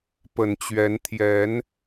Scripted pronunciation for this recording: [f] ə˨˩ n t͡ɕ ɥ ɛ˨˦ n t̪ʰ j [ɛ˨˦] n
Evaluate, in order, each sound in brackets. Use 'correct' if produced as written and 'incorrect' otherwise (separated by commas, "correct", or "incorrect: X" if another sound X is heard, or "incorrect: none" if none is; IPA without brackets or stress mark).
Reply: incorrect: p, correct